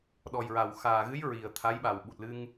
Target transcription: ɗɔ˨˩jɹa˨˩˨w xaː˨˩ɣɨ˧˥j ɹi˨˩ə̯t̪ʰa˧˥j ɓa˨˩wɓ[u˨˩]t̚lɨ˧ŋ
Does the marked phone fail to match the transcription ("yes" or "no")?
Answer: no